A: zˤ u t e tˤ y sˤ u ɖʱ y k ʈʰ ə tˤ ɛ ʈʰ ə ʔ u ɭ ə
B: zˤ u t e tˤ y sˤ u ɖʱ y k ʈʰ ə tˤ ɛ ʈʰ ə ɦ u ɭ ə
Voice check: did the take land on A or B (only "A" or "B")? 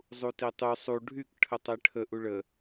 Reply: A